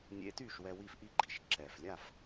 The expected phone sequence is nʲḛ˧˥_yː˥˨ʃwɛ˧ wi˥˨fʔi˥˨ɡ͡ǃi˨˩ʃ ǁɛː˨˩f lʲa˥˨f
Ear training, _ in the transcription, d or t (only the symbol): t